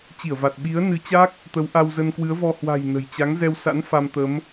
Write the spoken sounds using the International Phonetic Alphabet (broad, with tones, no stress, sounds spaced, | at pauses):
t͡ɕ i˧˩ ə̯ v a˨˩ t̚ ɓ i˨˦ ə̯ n ɨ˨˦ t͡ɕ a˦˥ k̚ | t̪ ə˨˦ w ʔ a˧ w z ə˧ n k w ɨ˨˦ ə̯ v ɔ˧ h w a̤˨˩ j n ə̤˨˩ j t͡ɕ a˨˦ ŋ z ɛ˧ w s a̰˧˥ n f a˧ m t̪ ə˨˦ m